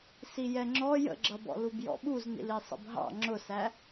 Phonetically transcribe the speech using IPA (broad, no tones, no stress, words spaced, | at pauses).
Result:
sijɛŋ͡ǁɔ jə̰ɡ͡ǁʌbɔ̰ lubjɔ̰ɓuznḭl isˤə̰bɦɑ̰ ŋ͡ǁʊsæ